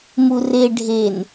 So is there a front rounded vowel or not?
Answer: no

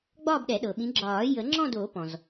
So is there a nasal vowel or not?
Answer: yes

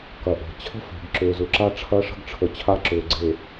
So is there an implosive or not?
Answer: no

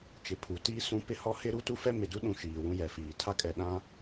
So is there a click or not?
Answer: no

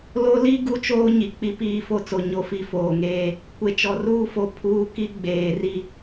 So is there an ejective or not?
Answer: no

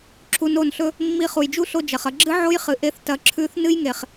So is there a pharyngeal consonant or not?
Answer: yes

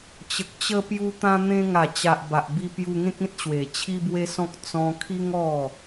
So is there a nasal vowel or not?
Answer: yes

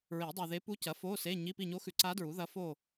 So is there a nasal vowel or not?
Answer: no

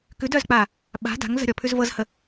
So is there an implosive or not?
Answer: yes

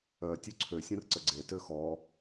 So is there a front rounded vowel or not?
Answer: yes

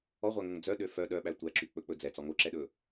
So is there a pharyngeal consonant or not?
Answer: no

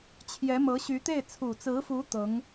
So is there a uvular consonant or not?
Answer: no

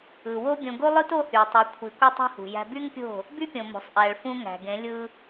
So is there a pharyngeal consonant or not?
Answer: no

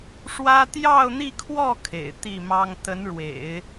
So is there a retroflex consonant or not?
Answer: yes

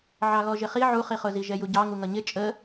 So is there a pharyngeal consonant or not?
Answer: yes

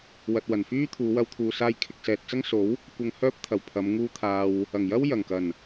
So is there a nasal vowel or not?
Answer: no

